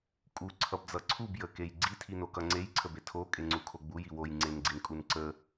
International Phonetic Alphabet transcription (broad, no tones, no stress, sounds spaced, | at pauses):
kʼ u ǀʰ ʌ b d͡z ʌ ǀʰ u b j ə k e j ɡ͡ǀ i tʰ i n o k ʌ ŋ͡ǀ e j ǀʰ ə b e tʰ o kʼ e ŋ͡ǀ u kʰ o ɡ͡b u j i w o j ŋ͡ǀ e n ɡ͡ǀ i n kʼ u n ǀ ə